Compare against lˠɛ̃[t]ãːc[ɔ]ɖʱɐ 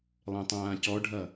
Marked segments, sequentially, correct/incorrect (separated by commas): incorrect, correct